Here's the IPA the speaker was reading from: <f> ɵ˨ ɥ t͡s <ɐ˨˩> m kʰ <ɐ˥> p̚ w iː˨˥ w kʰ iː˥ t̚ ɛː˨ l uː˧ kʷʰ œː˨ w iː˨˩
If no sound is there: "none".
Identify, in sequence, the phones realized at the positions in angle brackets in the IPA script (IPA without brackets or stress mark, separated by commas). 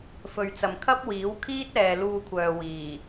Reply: f, ɐ˨, ɐ˥